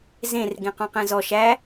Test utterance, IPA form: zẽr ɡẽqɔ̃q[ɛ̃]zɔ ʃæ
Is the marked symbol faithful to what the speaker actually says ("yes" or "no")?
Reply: yes